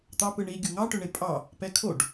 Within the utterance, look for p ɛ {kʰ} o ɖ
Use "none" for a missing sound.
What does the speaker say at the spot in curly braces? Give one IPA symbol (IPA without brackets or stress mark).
kʰ